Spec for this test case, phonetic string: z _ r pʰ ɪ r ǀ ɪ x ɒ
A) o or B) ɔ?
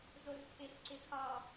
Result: A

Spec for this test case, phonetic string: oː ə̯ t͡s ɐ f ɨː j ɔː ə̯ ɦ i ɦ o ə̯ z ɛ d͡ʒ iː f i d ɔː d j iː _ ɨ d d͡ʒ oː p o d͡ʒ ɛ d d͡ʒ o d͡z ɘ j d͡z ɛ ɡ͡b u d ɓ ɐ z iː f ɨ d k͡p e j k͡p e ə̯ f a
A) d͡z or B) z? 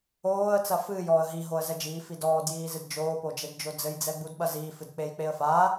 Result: B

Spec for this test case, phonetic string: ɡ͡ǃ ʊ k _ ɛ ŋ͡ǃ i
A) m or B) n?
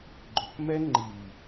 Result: A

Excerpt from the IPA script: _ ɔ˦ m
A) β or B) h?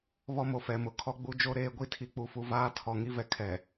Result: A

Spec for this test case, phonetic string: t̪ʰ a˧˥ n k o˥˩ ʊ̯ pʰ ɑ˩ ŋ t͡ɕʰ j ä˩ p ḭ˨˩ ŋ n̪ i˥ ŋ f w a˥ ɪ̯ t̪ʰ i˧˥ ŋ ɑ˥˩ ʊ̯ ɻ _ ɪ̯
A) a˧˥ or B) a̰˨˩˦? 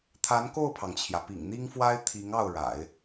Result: B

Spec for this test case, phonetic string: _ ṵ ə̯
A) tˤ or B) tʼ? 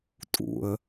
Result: B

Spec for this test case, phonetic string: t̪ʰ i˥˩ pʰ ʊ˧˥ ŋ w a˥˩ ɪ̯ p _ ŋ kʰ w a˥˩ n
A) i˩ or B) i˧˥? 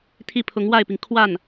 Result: A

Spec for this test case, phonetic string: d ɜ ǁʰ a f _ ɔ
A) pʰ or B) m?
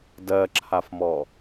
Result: B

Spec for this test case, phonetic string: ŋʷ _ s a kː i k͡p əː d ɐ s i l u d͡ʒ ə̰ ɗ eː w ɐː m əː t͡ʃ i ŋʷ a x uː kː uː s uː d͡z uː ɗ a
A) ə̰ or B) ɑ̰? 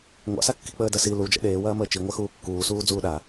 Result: B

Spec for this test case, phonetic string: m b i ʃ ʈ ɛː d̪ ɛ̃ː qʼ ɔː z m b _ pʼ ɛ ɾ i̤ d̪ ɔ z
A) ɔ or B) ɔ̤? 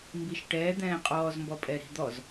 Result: A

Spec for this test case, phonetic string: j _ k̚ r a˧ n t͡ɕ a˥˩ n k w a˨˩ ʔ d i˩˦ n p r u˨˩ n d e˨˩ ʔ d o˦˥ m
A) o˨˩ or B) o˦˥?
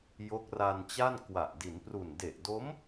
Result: B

